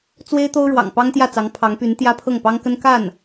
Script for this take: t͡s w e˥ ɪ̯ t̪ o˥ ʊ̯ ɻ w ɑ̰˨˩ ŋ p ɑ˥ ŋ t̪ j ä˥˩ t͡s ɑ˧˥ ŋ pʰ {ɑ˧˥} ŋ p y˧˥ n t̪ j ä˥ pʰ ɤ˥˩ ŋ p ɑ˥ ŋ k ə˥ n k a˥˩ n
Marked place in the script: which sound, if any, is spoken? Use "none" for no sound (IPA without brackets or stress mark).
ɑ˧˥